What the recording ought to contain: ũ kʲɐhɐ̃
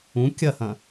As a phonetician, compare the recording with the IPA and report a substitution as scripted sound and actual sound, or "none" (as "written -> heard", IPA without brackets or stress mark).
none